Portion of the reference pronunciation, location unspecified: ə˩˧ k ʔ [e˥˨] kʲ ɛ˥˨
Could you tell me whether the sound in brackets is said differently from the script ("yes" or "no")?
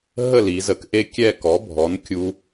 no